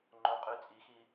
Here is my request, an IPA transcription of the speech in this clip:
ŋ͡ǃ o qʼ y t͡sʼ i x i

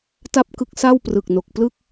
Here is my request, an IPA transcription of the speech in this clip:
t a˥˩ p̚ k ɯ˦˥ k̚ s a˥˩ w p r ɯ˨˩ k̚ n o˨˩ k̚ p l ɯ˥˩ k̚

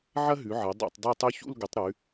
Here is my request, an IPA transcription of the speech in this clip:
ʕ ɐ˥ ɦ ʉ˨˦ ʕ ɐ˨˦ dˤ a̰˥˧ tˤ dˤ u˥˧ tˤ ʉ˥ ç ṵ˥˧ l ɡ ʊ˨˦ tˤ ɾ ʉ˨˦

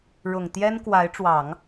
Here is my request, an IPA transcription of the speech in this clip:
ɻ ʊ˨˩ ŋ t̪ j ɛ˥ n k w a˧˥ ɪ̯ ʈ͡ʂ w ɑ˨˩˦ ŋ

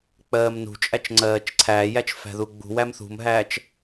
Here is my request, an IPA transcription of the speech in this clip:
k͡p ɜː m n ṳ t͡ʃʼ æ t͡ʃ ŋ͡ǀ ɜː t͡ʃ ǀʰ æː j æ t͡ʃ f æ̤ ð u ɡ͡b ṳ w æ m θ ṳ m ɦ æː t͡ʃ

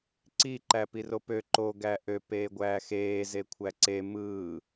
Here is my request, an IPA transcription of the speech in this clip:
ǀ i ǃ æ p i r o p ø ǃ o ɡ æ ʔ ø p eː ɡʷ æː x eː z e kʷʰ æ ǀ e m ɯː

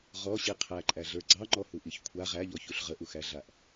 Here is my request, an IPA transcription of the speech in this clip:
ʁ ɔ ɕ i qʰ æ ǃʼ æ ɮ ə˞ ɡ͡ǀ ɑ ŋ͡ǃ ɔ h u ʔ i ç kʷʰ a ʁ æ ʎ ɔ ç u ɬ ʁ ə ʔ u x æ ɮ a ʔ

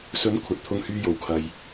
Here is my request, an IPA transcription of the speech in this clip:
s ɵ˨˥ n kʷʰ ɐ˨ t̚ t̪ʰ ʊ˧ ŋ h yː˧ j o˨˩ w kʰ ɐ˨ j

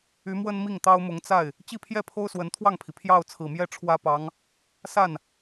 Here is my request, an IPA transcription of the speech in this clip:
y˧˥ m w ə˥ n m i˥˩ ŋ t̪ ɑ˥ ʊ̯ m ʊ˧˥ ŋ t͡s a˥˩ ɪ̯ | t͡ɕ i˥˧ pʰ j ɛ˥˩ pʰ o˥ ʊ̯ s w ə˧˥ n t̪ʰ w ɑ˥˩ ŋ pʰ i˩ pʰ j ɑ˥˩ ʊ̯ t͡sʰ ɹ̩˨˩ m j ɛ˥˩ ʈ͡ʂʰ w ä˥ p ɑ˧˥ ŋ | s a˥˩ n

